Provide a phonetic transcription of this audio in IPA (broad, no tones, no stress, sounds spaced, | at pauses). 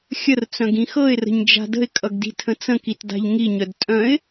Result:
xʲ ə r t͡s œ̃ ɡ ĩ x ɤ ɪ̯ r ə̤ ɲ d͡ʒ a̤ d ə̤ ɪ̯ kʼ ʌ ɡ d i̤ tʰ ə̃ t͡s ə̃ k i t d a̤ ʎ ŋ i ɲ œ d tʼ œ̃ ɪ̯